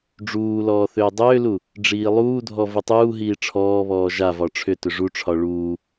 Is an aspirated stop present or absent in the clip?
present